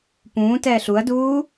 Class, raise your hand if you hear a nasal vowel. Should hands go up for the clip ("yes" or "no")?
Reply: yes